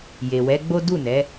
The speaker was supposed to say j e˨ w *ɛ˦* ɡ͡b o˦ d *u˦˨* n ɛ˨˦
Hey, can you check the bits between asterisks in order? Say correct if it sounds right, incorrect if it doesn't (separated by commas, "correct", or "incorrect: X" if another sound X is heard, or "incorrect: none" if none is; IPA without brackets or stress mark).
incorrect: ɛ˨˦, correct